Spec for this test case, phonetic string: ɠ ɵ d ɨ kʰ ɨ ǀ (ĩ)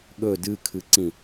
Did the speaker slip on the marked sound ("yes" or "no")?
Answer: no